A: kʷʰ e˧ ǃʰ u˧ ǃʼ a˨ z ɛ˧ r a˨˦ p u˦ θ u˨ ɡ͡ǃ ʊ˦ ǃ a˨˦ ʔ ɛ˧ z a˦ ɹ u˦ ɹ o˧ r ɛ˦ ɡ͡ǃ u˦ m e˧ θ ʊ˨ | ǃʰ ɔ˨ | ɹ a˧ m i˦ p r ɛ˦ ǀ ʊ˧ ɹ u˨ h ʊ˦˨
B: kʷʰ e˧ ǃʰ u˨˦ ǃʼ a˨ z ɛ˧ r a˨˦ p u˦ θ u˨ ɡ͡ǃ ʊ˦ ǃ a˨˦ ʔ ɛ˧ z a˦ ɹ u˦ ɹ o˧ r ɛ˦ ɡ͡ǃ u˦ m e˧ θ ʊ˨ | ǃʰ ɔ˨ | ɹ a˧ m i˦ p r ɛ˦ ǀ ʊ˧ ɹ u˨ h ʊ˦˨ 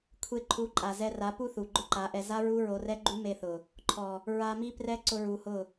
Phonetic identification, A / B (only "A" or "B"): B